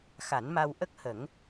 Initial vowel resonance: oral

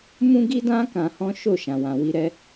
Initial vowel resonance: nasal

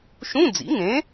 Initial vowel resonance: nasal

